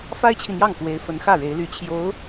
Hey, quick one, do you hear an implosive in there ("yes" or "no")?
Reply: no